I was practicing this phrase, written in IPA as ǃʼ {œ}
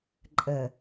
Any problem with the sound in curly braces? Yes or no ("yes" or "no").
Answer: yes